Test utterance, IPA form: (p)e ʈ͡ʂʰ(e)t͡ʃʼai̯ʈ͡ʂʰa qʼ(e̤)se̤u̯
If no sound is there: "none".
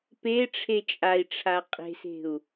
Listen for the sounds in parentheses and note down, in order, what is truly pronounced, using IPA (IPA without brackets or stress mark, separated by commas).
p, e, e̤